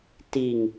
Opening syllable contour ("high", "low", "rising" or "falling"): low